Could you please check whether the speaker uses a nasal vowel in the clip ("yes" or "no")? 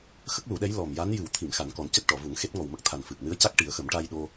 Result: no